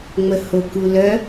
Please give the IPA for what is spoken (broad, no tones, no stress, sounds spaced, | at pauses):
ŋ͡m ə h o k u l œ